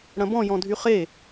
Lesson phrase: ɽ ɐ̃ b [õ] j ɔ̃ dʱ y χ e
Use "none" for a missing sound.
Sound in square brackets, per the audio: ɔ̃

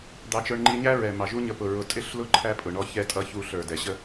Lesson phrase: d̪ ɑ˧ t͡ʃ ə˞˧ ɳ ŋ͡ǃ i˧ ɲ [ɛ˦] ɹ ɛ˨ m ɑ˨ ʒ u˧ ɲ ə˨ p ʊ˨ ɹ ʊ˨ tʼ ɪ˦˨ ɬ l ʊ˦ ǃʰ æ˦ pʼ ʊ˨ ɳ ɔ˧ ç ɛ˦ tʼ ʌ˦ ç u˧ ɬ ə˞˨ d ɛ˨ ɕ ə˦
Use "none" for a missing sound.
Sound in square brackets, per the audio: æ˦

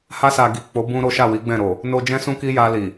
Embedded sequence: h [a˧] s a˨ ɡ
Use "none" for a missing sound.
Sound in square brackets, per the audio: a˧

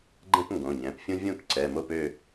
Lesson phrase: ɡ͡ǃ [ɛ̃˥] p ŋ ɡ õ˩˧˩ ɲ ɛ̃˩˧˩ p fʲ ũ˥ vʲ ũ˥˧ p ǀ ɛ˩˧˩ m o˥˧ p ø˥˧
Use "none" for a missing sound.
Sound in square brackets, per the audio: ɛ̃˥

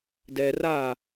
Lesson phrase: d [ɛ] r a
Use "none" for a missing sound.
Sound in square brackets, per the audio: ɛ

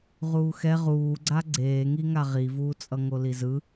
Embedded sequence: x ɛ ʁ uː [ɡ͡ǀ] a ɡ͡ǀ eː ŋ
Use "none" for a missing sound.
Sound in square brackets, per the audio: ɡ͡ǀ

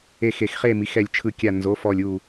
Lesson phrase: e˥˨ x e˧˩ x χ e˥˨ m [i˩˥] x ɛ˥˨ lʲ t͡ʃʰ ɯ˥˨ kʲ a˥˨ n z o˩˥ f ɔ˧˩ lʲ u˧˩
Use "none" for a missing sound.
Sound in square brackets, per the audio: i˩˥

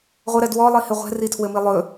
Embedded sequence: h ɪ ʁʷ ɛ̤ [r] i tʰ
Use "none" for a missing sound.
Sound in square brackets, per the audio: r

